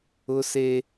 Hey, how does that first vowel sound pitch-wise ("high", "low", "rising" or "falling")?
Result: high